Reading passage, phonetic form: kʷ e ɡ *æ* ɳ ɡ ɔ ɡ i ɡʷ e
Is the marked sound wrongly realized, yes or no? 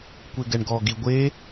yes